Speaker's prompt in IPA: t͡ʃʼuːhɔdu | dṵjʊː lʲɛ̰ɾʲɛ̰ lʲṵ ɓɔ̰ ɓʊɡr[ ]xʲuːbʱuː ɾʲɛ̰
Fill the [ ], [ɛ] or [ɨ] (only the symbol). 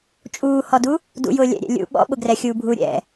ɛ